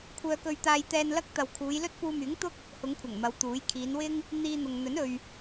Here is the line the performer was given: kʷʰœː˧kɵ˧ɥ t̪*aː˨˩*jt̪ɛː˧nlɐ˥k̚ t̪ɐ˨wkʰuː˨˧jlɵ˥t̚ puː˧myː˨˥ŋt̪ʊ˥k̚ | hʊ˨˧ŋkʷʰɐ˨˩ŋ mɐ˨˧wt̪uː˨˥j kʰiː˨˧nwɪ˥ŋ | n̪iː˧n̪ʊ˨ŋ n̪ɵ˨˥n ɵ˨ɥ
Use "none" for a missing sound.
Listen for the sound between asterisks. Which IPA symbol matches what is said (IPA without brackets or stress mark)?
aː˧